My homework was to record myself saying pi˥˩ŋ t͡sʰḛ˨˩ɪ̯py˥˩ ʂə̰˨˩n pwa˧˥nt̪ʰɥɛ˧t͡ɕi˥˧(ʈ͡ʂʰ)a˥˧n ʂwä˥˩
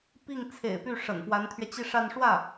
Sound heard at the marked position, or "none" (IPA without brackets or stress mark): ʂ